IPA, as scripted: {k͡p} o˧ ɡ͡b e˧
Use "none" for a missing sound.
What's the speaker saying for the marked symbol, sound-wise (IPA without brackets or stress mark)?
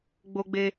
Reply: ɡ͡b